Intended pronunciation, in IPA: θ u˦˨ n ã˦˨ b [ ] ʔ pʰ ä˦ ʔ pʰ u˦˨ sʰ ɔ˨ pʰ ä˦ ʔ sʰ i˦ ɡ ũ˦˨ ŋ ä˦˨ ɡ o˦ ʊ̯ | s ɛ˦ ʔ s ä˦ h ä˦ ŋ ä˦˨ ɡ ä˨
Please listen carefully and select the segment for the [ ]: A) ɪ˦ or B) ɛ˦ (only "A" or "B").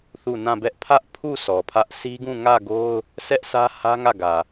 B